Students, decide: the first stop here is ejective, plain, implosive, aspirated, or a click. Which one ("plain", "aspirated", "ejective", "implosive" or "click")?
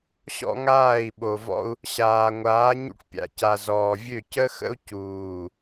implosive